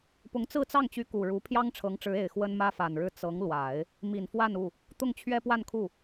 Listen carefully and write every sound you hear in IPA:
pʊ˧˥ŋt͡sɹ̩˥˧t͡sɑ˥˩ŋt͡ɕy˧˥ ku˨˩ɻu˧˥ pʰjɑ˥ŋʈ͡ʂʰɤ˧˥ŋʈ͡ʂɻ̩˧˥e˨˩ɪ̯ xwə˥nmä˥fa˨˩nɻɻ̩˥˩ t͡sɤ˧˥ŋlwa˨˩˦ɪ̯ | mi˨˩nfwa˥˧nu˥˩ | t̪ʊ˥˩ŋt͡ɕʰɥɛ˥pwa˥˧nkʰu˥˩

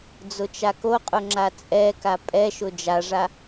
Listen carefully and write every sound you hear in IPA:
d͡zʊt͡ʃakoqʼʊ ŋ͡ǁat͡sʼɛka pʼɛʃʊ d͡ʒaʐa

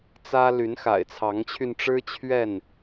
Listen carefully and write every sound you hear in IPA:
t͡sä˦ ly˨˦nxa̰˨˩ɪ̯t͡sʰɑ˨˦ŋt͡ɕʰy˧n ʈ͡ʂɻ̩˦t͡ɕʰɥɛ˥˨n

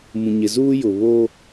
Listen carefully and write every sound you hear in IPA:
mũ˨ɲɪ˨zuː˦ jʊ˨βoː˦

